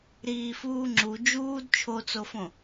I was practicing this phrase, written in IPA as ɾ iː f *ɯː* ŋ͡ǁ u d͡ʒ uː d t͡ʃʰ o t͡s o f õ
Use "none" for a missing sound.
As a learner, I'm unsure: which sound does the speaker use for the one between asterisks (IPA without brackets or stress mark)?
uː